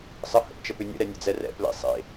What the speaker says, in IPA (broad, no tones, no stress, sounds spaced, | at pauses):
sˤ ə h ə̰ p t͡ʃ ə p ʏ nʲ ə̰ ɾ ɛ nʲ ə̰ d͡z ɛ r ɛ̰ p l ḛ sˤ ḛ